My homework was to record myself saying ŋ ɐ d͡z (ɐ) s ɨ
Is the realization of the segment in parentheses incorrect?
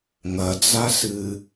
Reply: yes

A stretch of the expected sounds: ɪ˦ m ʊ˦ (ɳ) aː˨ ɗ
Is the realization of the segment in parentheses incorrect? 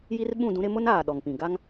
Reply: yes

